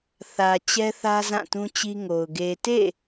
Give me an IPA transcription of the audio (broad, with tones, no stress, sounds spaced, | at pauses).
θ ä˨ t͡ɕ ɛ˦ θ ä˦ z ã˦˨ t ũ˦ t͡ɕ i˦ ŋ o˨ ʊ̯ ɡ e˨ t ḛ˦˨